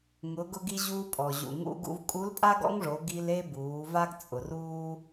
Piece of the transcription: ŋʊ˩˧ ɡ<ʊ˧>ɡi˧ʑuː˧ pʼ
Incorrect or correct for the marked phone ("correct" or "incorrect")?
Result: correct